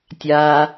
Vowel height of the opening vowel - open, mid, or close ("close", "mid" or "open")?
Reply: open